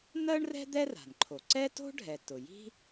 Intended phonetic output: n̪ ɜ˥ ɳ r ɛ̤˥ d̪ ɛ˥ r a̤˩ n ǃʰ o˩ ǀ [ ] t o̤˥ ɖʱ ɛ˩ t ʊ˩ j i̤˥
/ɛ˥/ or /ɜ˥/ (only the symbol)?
ɛ˥